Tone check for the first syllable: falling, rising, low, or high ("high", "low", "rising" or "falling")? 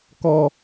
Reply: high